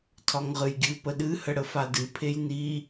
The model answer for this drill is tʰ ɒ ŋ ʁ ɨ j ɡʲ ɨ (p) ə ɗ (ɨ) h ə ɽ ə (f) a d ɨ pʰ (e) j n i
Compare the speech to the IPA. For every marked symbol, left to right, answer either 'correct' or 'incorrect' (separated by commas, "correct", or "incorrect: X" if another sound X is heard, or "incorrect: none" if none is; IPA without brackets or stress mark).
correct, correct, correct, correct